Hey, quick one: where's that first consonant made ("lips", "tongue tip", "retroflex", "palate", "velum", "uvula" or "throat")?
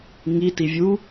velum